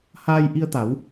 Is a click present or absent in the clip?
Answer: absent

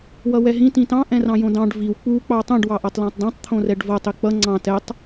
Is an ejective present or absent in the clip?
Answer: absent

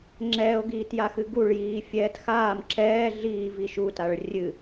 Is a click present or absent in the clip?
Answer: present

